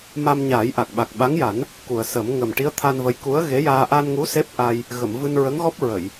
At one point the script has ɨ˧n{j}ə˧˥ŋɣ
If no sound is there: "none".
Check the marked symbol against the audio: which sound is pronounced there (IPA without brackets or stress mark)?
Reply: ɹ